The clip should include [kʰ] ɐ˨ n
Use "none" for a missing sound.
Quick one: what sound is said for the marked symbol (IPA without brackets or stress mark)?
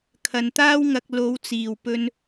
kʰ